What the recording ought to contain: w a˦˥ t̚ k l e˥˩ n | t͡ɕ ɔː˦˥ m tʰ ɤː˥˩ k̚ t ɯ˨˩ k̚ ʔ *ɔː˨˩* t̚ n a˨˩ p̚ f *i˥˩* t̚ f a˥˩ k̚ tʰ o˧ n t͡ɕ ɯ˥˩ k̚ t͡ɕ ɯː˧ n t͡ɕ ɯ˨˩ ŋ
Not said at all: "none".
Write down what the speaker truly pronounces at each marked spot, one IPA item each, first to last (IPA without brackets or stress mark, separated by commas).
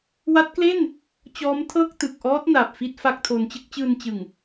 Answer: ɔː˦˥, i˥˩